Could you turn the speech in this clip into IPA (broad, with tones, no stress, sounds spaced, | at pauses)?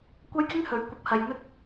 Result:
kʷ ɐ˥ j k ɪ˥ ŋ h ɵ˨˥ ɥ kʷ ɐ˧ p̚ h ɐ˧ j n̪ ɵ˧ t̚